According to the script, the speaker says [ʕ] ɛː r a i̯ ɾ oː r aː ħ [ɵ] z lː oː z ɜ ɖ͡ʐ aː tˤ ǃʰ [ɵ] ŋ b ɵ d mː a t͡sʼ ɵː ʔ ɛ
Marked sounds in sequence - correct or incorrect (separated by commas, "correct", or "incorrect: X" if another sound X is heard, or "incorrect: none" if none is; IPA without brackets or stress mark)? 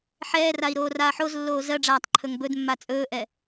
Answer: incorrect: ħ, incorrect: o, correct